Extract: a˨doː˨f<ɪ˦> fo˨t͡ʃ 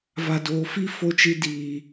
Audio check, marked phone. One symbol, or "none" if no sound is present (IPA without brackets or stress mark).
i˦